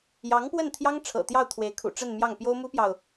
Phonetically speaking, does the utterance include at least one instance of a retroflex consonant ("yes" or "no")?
yes